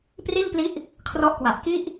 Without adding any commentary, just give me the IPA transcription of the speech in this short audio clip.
p r i˥˩ n p l i˦˥ ʔ | kʰ r ɔ˦˥ ʔ k w a˨˩ ʔ k i˥˩ ʔ

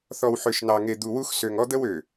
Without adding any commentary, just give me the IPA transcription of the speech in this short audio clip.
θ ɔ˨ w ħ ø˨ ʃ n ɑ˨ ŋ e˨ d̪ u˨ w u˦ x s ø˨ ŋ ɔ˦ d̪ ə˦ w ø˨

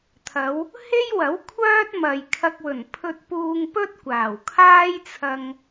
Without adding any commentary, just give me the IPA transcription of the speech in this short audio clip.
t̪ʰ ɐ˨˧ w | h e˥ j w ɐ˨˥ w kʷʰ œː˥ t̚ m ɐ˨ j kʰ ɐ˧ k̚ w ɵ˨˩ n pʰ ɵ˧ t̚ p uː˧ ŋ p ɵ˥ t̚ kʷ aː˨˩ w kʰ aː˥ j t͡sʰ ɐ˧ ŋ

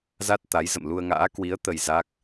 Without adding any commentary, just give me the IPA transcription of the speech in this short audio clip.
z a˦˥ t̚ t̪ a˨˦ j z ə̰˧˨ m l u˧ ə̯ ŋ a̰ː˧˥ k w i˨˦ ə̯ t̪ ə˧ j z a˦˥ k̚

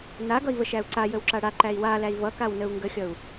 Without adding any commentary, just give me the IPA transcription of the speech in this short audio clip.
n a ɡ ʌ i̯ v ə ʃ æ u̯ ǀ a j ə w ǁ a ɽ a ǃ æ i̯ w a l æ i̯ v ʌ k a w n ə u̯ ŋ ɡ ə xʲ ʌ u̯

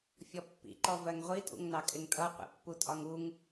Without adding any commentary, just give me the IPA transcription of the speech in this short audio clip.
fʲ ɔ pː ḭ ǃ ɔ v ɜ ŋ ʁʷ i tʼ ṵ ŋ n ɑ kʼ ɪ ŋ tʼ ʌ qʷ ḭ pː u tʼ ɒ ŋ u ŋ

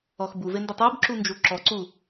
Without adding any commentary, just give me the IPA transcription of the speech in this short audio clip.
ɔ x b u v e n d ɪ tˤ u b ǁ u n d͡ʒ u ǁ ɔ ǀ u

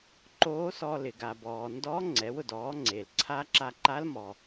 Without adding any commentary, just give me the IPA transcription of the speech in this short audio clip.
ǃ oː˧˥ s ɔ˧ l ɪ˩ ɡ a˩ b ɔː˩ n d ɔː˧˥ ŋ͡ǀ ɛ˩˧ w ʊ˩ d ɔː˩˧ ŋ͡ǀ e˩ l ǀʰ aː˧ ǁ a˧ ǃ a˧˥ l m ɔ˩

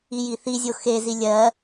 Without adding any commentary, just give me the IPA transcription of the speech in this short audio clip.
i j i θ i zʲ o x e z i lʲ ɜ

